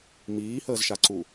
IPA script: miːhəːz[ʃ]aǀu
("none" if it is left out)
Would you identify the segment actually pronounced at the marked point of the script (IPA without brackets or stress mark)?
ʃ